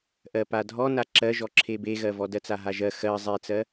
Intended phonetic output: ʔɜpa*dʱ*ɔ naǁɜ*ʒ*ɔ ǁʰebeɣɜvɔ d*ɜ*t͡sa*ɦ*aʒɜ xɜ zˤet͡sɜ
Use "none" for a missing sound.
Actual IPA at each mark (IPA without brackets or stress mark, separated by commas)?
dʱ, ʒ, ɜ, ɦ